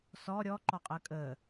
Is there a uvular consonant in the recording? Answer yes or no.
yes